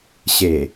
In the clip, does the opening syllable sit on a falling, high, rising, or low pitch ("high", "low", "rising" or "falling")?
low